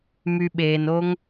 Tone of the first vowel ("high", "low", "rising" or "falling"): low